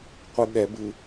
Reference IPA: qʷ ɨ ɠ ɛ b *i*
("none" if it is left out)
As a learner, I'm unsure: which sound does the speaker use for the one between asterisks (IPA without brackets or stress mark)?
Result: ɨ